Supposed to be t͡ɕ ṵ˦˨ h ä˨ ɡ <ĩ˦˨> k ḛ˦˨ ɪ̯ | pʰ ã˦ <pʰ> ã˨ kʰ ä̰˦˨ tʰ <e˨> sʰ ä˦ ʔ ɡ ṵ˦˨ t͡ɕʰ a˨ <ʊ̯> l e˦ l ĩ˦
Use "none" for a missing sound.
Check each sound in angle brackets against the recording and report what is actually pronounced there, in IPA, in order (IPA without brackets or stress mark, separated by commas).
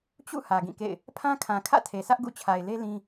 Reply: ĩ˦˨, kʰ, e˨, ɪ̯